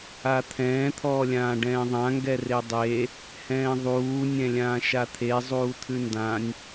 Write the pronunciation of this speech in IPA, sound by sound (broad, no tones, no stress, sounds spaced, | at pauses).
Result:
a t̪ʰ ɛ̃ː t̪ʰ ɔː lʲ ãː ɖ ɛ̃ː ðˤ ã ŋ ɡ ɛ r e dˤ e | h ɛ̃ː ðˤ uː nʲ ɛ̃ lʲ ãː ʃ a t̪ʰ e zˤ uː t̪ʰ ʉ n d ã nʲ